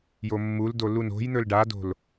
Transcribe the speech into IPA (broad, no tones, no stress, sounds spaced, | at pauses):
j o mː u l d o l u n o̤ j n̪ ɵ l ɖ a d o̤ l